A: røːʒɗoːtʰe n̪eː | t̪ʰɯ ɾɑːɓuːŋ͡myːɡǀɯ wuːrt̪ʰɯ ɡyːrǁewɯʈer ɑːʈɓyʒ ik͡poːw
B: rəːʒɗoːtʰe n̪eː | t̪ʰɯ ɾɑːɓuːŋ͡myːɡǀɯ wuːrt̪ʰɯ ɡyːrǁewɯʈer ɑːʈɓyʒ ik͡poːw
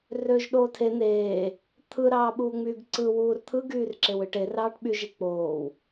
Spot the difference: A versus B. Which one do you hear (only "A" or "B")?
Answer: A